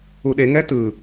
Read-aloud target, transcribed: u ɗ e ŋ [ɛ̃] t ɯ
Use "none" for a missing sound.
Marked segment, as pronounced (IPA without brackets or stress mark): ɛ